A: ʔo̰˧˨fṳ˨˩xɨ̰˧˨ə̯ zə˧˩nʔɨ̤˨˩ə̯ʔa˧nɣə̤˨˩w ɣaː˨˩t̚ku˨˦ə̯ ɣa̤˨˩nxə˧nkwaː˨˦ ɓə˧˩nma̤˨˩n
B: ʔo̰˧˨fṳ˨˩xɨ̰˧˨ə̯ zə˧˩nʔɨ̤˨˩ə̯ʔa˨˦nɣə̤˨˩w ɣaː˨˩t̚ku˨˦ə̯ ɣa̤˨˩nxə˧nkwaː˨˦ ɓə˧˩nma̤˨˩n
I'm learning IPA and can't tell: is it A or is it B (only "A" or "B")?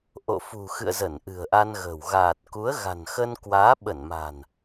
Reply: A